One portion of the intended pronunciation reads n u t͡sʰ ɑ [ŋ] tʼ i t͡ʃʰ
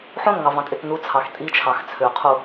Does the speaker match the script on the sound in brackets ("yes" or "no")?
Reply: no